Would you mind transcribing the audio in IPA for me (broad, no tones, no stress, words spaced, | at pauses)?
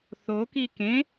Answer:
θoki kẽ